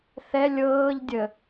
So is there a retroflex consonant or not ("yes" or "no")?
no